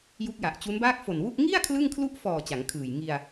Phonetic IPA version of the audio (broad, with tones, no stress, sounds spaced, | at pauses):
j u˦˥ k̚ j a˨˩ ʔ t͡ɕ u˦˥ n b aː˥˩ k̚ f o˨˩ n w u˥˩ k̚ ŋ i˥˩ a̯ kʰ l ɯ˥˩ ŋ kʰ l u˥˩ ʔ f ɔː˨˩ t͡ɕ a˩˦ ŋ kʰ ɯː˨˩ j ŋ i˧ a̯